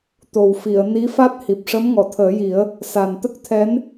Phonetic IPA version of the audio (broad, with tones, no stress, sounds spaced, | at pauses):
t̪ o˨˩ w f i˨˩˨ ə̯ n i˧˥ f a˦˥ t̚ h i˨˩ p̚ ʂ ə˧˥ m ŋ ɔ˨˩˨ t̪ʰ əː˨˩˦ j i˨˩˦ ə̯ | s a˨˩ n t̪ ə˦˥ k̚ t̪ʰ ɛ˧˥ n